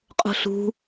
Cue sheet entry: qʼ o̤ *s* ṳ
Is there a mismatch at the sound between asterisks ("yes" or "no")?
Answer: yes